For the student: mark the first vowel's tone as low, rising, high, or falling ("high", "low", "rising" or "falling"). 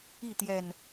falling